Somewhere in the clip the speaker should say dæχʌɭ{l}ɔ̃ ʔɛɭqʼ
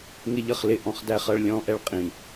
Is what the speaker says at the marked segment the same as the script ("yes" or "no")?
no